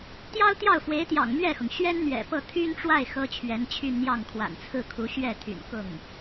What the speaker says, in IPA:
t̪ j ɑ˥ ʊ̯ t̪ j ɑ˥˩ ʊ̯ f w e˧˥ ɪ̯ t̪ j ɑ̰˨˩ ŋ m ɥ ɛ˥˩ x ʊ˩ ŋ ɕ ɥ ɛ˥ n n̪ ɥ ɛ̰˨˩ p ɤ˥˩ t̪ʰ y˥ n ʈ͡ʂ w a˥˩ ɪ̯ x ɤ˥ t͡ɕʰ ɥ ɛ˧˥ n t͡ɕʰ y˥˧ n n̪ j ɑ˥˩ ŋ kʰ w a̰˨˩ n t͡sʰ ɹ̩˥˩ kʰ u˧˥ ɕ ɥ ɛ˥˩ t̪ʰ y̰˨˩ n k ʊ˥˩ ŋ

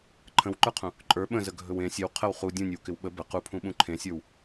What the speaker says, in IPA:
ǃʰ ə̃ w ǃ ə˞ qʰ ũ | ǃʼ ə˞ ɓ ə̃ z ə ɡʱ ɵ w ẽ sʲ ɵ w qʰ ə w χ u dʲ ũ nʲ ə w k ɪ w ɓ ə b ə q u pʰ ũ ɓ ũ ǃʰ ẽ sʲ ə˞ w

